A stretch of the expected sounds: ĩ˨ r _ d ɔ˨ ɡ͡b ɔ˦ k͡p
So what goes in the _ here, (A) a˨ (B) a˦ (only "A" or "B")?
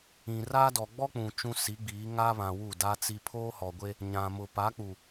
B